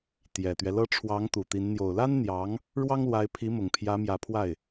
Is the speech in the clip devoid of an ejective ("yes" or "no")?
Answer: yes